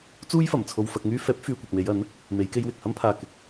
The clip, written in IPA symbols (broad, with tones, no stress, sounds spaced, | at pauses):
t͡s uː˥ j f ɐ˨˩ m t͡sʰ o˧ w f ɐ˧ k̚ ŋ yː˥ f ɛː˨˥ p̚ f yː˨ kʷ ɐ˨ k̚ m e˨˧ j ɐ˨˥ n | m e˨˧ j k e˧ j w ɪ˨ k̚ h ɐ˥ m pʰ aː˨ k ɪ˧ k̚